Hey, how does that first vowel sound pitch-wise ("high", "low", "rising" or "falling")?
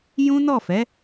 high